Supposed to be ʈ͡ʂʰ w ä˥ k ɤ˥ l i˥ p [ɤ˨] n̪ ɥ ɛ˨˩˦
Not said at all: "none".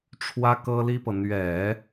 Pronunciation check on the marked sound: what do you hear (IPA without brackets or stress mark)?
ɤ˨